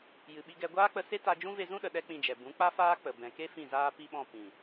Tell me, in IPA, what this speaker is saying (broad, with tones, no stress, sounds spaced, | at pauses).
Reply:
j ɨ˨ ɓ i˧ ɡ ɛ˧ ɡʷ aː˦ k͡p ə˧ s e˦ t a˧ d͡ʒ ũ˦ v e˧ z ũ˦ ɗ ə˨ ɗ ɛ˦ k͡p ĩ˧ d͡ʒ ɛ˨ b ũ˨˦ k͡p a˦ f aː˦ k͡p ə˨ b ɛ̃˨ k e˦ f ĩ˦˨ z aː˦ p i˦ ɓ ɔ̃˦˨ p ĩ˨